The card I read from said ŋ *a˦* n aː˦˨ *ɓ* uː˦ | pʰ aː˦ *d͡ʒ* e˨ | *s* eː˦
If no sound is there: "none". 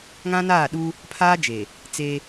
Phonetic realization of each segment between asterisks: ã˦, ɗ, d͡ʒ, t͡s

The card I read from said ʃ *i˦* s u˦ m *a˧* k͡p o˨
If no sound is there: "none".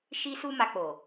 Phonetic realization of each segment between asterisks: i˦, a˧

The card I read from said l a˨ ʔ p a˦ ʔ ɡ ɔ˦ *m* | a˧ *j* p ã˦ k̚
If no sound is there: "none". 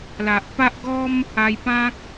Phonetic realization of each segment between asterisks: m, j

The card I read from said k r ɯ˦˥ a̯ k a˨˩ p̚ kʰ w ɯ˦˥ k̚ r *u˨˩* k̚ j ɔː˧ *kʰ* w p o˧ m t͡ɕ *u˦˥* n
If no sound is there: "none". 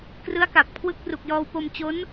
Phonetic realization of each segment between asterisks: u˨˩, none, o˦˥

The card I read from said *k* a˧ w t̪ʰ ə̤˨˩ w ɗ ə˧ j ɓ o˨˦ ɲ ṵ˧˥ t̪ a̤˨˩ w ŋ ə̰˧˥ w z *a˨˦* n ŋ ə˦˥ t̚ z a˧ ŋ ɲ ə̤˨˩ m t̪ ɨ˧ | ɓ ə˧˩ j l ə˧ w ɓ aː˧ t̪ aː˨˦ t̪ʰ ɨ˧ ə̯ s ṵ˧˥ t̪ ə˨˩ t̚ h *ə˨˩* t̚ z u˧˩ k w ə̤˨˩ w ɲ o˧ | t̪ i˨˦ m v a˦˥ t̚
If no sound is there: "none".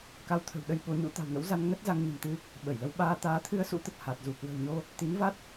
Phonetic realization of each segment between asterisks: k, a˧, a˨˩

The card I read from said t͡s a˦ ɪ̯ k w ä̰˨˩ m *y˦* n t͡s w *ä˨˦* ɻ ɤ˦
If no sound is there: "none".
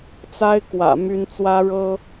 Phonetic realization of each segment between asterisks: y˦, ä˦

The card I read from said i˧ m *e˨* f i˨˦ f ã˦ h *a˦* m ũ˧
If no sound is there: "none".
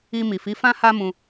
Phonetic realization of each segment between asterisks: i˨, a˦

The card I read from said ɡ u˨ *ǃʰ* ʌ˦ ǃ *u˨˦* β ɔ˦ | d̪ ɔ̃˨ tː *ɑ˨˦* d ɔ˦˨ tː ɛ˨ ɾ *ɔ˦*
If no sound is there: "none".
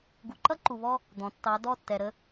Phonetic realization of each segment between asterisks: ǃ, u˨, ɑ˨˦, ə˦

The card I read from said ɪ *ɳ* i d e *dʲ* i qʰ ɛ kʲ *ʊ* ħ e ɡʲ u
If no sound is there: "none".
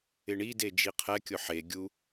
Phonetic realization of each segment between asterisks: ɳ, d͡ʒ, ʊ

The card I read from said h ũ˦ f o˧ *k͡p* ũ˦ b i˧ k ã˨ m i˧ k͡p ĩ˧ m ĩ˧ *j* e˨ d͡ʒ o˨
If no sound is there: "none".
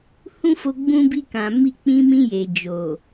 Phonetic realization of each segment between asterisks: ɡ͡b, j

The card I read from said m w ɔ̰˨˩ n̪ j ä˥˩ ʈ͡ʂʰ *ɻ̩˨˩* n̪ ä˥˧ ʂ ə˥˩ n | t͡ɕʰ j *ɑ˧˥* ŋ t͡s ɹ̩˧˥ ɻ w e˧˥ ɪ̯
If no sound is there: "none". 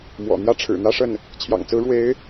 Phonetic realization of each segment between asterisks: ɻ̩˨˩, ɑ̰˨˩

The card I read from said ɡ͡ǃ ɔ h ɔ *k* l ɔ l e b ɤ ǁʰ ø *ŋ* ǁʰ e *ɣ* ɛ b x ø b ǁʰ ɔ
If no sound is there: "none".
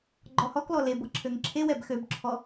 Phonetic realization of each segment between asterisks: k, ŋ, w

